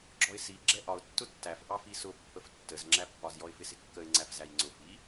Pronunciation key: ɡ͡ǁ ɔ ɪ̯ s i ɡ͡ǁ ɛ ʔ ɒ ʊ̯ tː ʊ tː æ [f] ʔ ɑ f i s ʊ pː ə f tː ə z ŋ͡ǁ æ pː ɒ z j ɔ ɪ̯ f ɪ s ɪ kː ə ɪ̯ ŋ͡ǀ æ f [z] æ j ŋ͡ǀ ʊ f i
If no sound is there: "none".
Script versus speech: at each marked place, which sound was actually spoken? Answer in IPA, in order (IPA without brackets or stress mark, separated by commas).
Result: f, z